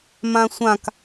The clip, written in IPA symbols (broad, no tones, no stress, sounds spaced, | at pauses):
m ã sʷ ã k